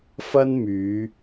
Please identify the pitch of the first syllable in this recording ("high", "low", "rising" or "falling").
high